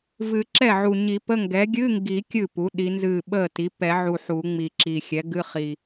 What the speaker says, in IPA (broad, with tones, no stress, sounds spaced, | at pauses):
v ɨ˨˩˦ ǁ ɛ˥˩ ʕ u˨˩ ɲ i˨˩˦ p ə˧˥˧ ŋ ɡ ɛ˩˥ ɡʲ ɨ˧˥˧ ŋ ɡ i˨˩˦ kʲ ɨ˥˩ p u˩˥ ɗ i˩˥ n z ɨ˥˩ ɓ ə˥˩ t i˩˥ p ɛ˨˩˦ ʕ u˨˩ ħ u˨˩˦ ŋ͡m i˨˩ ǁ i˨˩ xʲ ɛ˩˥ ɡ ɨ˧˥˧ χ i˨˩